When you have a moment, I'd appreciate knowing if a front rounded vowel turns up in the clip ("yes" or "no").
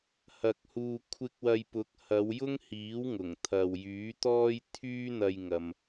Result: yes